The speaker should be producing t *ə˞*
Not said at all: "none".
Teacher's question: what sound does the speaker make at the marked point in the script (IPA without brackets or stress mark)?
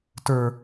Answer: ə˞